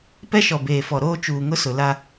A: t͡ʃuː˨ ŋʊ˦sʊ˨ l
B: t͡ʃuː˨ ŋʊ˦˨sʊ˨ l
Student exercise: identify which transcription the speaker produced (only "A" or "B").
A